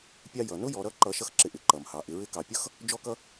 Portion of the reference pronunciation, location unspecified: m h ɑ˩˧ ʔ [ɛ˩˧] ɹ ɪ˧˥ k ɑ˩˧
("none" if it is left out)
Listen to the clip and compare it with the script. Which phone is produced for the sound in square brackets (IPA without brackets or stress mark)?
ɪ˩˧